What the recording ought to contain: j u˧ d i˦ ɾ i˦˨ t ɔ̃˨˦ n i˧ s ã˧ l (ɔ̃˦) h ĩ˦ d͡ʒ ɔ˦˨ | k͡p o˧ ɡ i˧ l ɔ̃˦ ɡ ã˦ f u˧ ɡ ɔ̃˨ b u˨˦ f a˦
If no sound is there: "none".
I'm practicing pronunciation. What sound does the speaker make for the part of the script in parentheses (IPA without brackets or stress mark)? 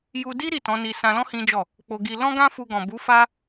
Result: ɔ̃˦